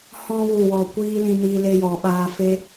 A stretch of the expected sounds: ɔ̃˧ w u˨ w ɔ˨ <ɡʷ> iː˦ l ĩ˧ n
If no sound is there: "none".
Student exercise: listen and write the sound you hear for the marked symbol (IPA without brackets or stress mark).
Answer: kʷ